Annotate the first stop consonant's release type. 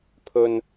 aspirated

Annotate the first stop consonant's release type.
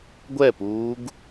plain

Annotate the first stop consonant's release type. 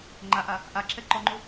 click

